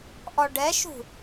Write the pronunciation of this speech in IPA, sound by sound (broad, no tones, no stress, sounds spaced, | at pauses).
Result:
ʔ ɔ ɖ ɛ ʃ ṳ